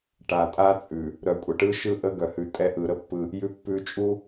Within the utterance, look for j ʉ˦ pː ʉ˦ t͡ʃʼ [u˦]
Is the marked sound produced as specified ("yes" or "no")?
yes